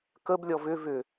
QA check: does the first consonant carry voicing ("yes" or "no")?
no